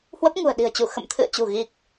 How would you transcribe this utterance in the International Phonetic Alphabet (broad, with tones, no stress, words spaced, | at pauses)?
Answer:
hwə˦˥p̚ŋṳ˨˩ə̯ɗi̤˨˩ə̯t͡ɕu˧˩ xə̰˧˨mt̪ʰɨ̰˧˨ə̯t͡ɕṳ˨˩ɣi˨˩k̚